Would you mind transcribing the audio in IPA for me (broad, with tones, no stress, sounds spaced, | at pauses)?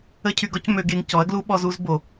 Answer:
ə˦ cʰ y˧ ɡ ɔ˦ c m ø˧ ɡ e˧ ŋ c ɔ˨˦ ɐ̯ ɡ l u˦ ɓ ɔ˧ z u˧ z b o˨